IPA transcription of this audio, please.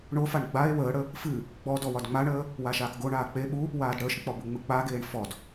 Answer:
ɳofaɳ ɡ͡bae̯ wəːɽə | fɨ | ɡ͡bɔdɔ wɒdŋ͡maɳəː | waʃaːkɡoɳaː k͡pe ɓu | waːdɽəːʃk͡pɔ buŋ͡mɨk͡paɡeːɳ fɔd

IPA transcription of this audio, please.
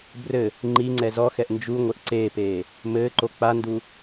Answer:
brɘ | ŋ͡ǃiŋ͡ǀɛ zɔxɛʔ nd͡ʒuŋʷɘʔ ǀeːpeː | mɘːǃo k͡pandu

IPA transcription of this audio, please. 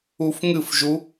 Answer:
ufŋɨfʒu

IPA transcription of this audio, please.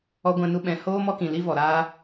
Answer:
ɔ˧ɡʷɛ̃˧nu˧ ɓɛ̃˨hoː˦ mɔ˦kĩ˨ li˦vɔ˨ɾaː˦

